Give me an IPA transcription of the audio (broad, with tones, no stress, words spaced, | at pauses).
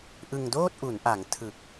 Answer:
ʔɯ˧ŋdoː˥˩t̚ʔu˩˦nʔa˩˦ŋ tʰɯ˨˩k̚